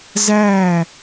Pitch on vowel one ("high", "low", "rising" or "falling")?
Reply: falling